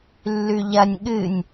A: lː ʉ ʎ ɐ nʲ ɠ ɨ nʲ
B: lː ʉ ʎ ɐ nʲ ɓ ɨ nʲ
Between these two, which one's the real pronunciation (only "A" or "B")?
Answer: A